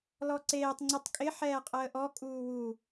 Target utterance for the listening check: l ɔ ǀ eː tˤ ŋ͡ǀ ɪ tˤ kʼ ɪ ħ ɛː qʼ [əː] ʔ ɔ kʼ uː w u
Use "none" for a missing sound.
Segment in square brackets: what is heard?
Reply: əː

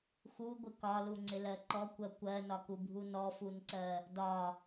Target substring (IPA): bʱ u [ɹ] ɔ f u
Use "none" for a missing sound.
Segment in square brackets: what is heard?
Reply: n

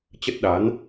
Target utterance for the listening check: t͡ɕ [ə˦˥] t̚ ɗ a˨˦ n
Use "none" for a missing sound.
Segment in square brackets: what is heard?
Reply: ə˦˥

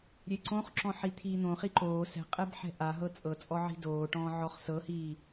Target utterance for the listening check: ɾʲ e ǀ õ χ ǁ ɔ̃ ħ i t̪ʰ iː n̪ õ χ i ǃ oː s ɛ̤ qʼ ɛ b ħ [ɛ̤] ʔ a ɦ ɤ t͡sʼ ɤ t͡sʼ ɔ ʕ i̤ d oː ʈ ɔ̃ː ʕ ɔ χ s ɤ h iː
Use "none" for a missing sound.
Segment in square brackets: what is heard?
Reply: ɛ̤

